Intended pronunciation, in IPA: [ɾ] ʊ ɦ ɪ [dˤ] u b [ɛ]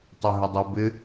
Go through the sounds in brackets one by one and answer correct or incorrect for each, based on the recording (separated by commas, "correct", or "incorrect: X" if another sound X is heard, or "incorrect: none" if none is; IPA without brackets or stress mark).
incorrect: tˤ, correct, incorrect: ɪ